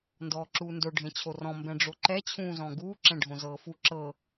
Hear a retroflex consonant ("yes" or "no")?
yes